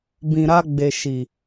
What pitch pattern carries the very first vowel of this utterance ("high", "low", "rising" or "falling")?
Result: low